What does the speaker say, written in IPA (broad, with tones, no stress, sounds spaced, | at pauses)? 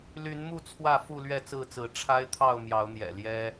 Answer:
l y˨˦ n m u˥˨ t͡sʰ w ä˥˨ f u˥˨ l ɥ ɛ˥˨ t͡s ɹ̩˥˨ t͡s ɹ̩˨˦ ʈ͡ʂʰ a˦ ɪ̯ t̪ʰ ɑ˥˨ ʊ̯ m j ɑ˨˦ ʊ̯ n̪ j ɛ̰˨˩ l j ɛ˦